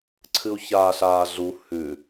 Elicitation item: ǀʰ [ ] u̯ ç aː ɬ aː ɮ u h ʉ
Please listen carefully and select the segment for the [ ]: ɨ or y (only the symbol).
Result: ɨ